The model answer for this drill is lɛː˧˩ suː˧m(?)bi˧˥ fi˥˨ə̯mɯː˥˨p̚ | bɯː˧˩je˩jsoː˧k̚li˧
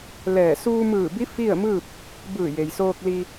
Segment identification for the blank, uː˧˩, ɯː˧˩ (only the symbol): ɯː˧˩